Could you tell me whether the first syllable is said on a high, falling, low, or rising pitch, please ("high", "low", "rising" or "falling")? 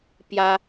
high